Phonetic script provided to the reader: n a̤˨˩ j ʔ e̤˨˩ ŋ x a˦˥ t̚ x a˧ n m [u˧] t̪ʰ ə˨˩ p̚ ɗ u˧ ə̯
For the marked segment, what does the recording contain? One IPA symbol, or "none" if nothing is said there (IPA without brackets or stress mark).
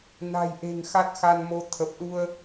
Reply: o˧